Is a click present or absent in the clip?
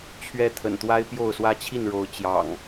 absent